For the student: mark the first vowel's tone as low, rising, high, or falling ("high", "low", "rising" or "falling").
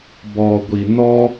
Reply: low